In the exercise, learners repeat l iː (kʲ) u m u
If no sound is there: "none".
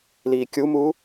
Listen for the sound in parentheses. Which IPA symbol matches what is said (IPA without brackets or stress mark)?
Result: kʲ